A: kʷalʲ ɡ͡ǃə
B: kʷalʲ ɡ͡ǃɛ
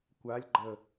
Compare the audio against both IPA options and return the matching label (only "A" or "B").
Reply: A